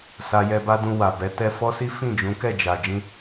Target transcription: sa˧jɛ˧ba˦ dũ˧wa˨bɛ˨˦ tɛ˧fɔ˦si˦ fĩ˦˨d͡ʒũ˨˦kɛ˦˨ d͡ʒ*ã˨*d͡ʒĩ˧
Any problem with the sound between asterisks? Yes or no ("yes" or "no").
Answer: yes